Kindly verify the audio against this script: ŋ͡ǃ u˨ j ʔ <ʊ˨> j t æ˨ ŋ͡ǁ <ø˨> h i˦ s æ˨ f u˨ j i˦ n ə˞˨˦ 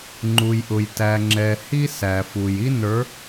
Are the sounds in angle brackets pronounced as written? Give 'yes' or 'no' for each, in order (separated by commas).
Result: yes, no